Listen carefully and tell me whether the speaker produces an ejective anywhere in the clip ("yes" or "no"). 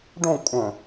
yes